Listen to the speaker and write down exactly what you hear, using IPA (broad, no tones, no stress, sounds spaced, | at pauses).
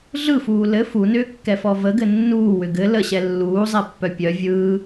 ɮ ɯ f uː l ɘ f u n ʏː kː ɛ f ɔ v ə ɡ ɘ nː uː w ʏ ɡ ɘ l ə ɕ ɛ lː uː zˤ ɛ pː œ pʲ œ vʲ ɯː